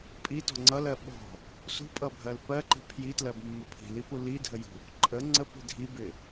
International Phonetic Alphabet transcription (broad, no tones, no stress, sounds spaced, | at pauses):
pʼ i t ɔ̤ ŋ͡ǀ ʌ l ɜ ɓ ɔ̤ | s ṳ pʼ ʌ bʱ ɜ l p ɜ ǃ i̤ pʰ j i t l ɜ b mː ə pʰ i̤ l i p u l i dʱ ə j ṳ | ǃʼ ə ŋ͡ǀ ə p i̤ dʱ i b ɪ